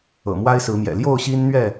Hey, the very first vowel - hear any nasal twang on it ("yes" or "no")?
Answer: no